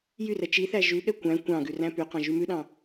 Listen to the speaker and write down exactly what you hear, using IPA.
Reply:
j y r ɛ t͡ʃ i θ æ ʒ ʉ ɠ ɛ kʷ æ̃ kʷ ɑ̃ ɡ ʉ r æ̃ p y q ɑ̃ ʒ y m ʉ ɗ ɑ̃

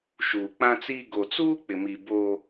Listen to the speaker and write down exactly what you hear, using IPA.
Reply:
ʃ uː˨ k͡p ã˦ t͡s i˦ ɡ o˨ t͡s uː˦ k͡p ɪ˨ m i˨ b oː˦

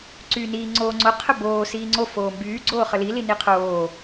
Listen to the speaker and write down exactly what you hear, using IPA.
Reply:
ǀ yː n iː ŋ͡ǀ oː ŋ͡ǀ o qʰ ə b oː s iː ŋ͡ǀ o f oː m b yː ɡ͡ǀ oː χ ə l i l i n i qʰ oː

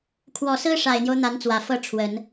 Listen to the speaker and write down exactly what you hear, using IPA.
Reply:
kʰ w ɔ˨˩ s ɹ̩˥ ʂ a˨˩ ɪ̯ n̪ j o˦ ʊ̯ n̪ a˧˥ n t͡s w ä˨˩ f ɤ˥˩ ʈ͡ʂʰ w ə˨˩˦ n

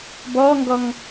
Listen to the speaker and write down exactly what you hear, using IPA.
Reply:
b ɔː ŋ ɡ ɔ ŋ

